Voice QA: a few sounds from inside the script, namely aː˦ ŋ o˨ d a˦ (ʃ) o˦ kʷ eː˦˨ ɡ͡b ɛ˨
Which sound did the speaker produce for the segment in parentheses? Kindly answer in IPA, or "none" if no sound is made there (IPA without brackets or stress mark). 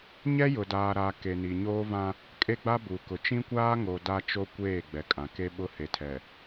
t͡ʃ